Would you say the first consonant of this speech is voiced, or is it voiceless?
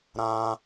voiced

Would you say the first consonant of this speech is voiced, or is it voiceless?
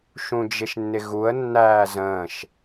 voiceless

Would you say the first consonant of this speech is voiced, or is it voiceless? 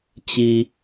voiceless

